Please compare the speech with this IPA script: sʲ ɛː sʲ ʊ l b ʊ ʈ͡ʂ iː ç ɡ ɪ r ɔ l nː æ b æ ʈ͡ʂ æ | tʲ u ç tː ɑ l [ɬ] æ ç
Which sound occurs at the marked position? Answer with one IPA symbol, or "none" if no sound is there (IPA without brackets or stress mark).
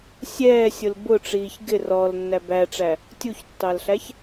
ɬ